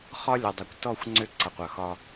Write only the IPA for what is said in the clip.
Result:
χɒ˦lʲɒ˨dˤe˨kʷ tɔ˦˨xʷŋ͡ǀʏ˦˨ ǀʌ˨qʷʌ˨xɒ˦

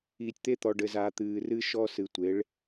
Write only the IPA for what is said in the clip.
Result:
iː˨tʲt̪e˦t̪ɔ˨ ɖɘ˨zaː˨ t̪ɨː˨rɨ˦ ʃɔ˦ sɨ˨tʷe˨˦ɭ

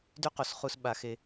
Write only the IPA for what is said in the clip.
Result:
dy˥qo˩sχu˧s ɓa˩˧ xe˧

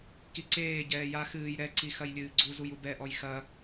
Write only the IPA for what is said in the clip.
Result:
kiǀeː ɟɛːja xɨːj ɾɛǀi xɐjlʲɨːɡ͡ǀuzuj ubɛʔɔj xɐ

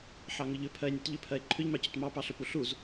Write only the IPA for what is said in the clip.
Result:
ħɑŋʏʎʏ pʰɜe̯nʲɔtʎʏ pʰɜe̯ǃʰʏʎmɑcʏt mɑpɑɬʏpu ɬuz

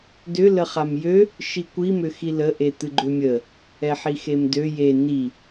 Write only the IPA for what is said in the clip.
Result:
dʏ ləχamjø | ʃikʷi mʏxilə ʔet̪ɨɡ͡ǃømʲə | ɛħixemdø je ni

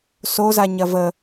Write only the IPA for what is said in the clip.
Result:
sozaɲɐ və

